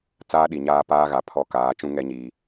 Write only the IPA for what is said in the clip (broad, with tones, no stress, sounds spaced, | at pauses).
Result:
t͡s aː˦ ɗ i˨ ɲ aː˦ p aː˦ ɣ a˨ pʰ ɔ˦ k aː˨˦ t͡ʃ ũ˦ ŋ ɛ˦ ɲ iː˨